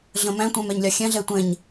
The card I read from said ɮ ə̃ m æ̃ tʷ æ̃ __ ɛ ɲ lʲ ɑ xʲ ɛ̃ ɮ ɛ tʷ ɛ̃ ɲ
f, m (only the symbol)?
m